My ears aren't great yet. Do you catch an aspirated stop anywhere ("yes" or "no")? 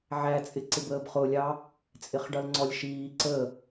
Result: no